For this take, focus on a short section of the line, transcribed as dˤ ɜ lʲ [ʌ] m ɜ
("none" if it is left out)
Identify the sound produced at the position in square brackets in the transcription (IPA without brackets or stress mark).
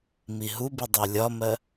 ɒ